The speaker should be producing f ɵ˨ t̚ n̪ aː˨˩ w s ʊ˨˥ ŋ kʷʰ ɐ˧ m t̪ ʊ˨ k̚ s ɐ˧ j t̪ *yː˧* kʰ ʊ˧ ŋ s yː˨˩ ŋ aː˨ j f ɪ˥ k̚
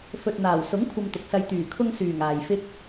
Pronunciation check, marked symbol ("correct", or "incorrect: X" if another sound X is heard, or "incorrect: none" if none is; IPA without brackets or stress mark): incorrect: yː˨˩